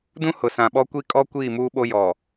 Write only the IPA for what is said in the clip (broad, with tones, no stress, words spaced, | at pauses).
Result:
dũ˦hʊ˨sã˨ɓɔ˦ kʷi˦kʼɔ˦ kʷiː˦˨muː˦ɓo˦ jɔ˨